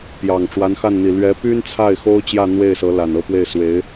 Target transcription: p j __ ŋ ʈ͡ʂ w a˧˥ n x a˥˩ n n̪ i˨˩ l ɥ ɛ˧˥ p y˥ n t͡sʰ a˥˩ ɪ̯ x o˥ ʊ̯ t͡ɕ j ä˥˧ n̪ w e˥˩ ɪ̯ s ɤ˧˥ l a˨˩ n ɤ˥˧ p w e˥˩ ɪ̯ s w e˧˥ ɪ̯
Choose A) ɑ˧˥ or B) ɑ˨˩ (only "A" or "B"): B